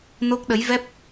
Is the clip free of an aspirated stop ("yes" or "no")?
yes